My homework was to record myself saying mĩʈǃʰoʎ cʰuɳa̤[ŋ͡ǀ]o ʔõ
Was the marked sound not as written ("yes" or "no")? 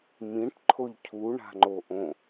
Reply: yes